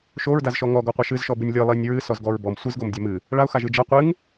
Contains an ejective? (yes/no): no